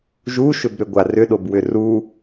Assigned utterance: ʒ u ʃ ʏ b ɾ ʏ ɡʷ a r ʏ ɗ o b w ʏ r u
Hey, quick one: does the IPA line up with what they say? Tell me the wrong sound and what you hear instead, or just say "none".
none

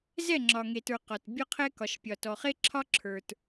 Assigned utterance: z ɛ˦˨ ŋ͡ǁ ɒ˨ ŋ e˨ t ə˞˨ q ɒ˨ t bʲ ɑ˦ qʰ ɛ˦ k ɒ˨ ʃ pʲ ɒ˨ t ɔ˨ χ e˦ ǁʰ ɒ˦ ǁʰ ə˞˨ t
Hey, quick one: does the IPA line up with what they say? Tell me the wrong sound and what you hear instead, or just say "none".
ɑ˦ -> ɒ˦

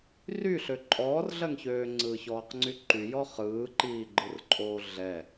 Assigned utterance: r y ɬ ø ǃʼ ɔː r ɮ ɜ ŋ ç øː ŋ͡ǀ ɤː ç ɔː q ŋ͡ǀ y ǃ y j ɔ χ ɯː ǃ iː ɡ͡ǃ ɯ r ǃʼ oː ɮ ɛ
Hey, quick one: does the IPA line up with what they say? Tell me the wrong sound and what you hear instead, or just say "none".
ɤː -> ɯː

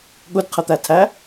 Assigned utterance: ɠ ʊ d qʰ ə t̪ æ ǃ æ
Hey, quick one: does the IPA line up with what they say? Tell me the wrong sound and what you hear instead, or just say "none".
ǃ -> tʰ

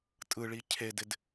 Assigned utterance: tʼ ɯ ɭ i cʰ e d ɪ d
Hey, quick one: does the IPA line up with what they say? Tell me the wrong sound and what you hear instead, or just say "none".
none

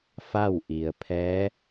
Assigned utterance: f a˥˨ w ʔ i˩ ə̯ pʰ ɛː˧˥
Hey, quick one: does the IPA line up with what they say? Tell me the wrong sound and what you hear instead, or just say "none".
none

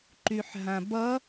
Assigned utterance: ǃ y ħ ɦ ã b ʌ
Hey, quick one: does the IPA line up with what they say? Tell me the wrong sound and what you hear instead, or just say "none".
none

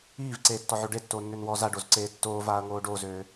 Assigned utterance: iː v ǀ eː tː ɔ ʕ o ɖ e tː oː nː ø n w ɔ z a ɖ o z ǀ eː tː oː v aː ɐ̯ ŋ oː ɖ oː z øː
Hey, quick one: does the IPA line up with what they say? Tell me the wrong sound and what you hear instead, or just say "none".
none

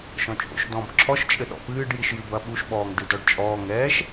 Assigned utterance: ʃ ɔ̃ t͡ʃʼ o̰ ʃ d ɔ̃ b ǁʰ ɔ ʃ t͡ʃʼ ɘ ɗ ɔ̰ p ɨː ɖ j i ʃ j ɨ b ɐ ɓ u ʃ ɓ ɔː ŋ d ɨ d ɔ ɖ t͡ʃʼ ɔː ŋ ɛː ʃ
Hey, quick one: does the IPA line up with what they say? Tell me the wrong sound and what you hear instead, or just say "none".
none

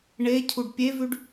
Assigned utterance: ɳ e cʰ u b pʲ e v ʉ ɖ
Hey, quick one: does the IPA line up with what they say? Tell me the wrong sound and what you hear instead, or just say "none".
b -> ɖ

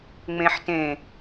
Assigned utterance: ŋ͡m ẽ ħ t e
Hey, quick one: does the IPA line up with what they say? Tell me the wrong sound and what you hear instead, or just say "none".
e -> ẽ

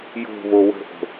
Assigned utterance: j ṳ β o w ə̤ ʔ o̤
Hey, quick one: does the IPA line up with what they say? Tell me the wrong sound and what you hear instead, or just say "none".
ṳ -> o̤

